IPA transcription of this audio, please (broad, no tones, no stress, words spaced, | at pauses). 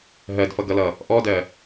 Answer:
ɦɜdfʌɡʌlʌ | ʔɔdɜ